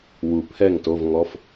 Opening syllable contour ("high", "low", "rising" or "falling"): low